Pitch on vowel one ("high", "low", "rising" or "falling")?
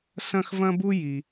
high